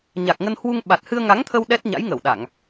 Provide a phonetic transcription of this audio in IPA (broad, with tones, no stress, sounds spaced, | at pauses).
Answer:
ɲ a˨˩ k̚ ŋ ə˧ n h w u˧ ŋ ɓ a˨˩ t̚ h ɨ˧ ə̯ ŋ a˨˦ ŋ t̪ʰ ə˧ w ɗ ɛ˦˥ t̚ ɲ a̰˧˥ j ŋ ə˧˩ w ɗ a˧˩˨ ŋ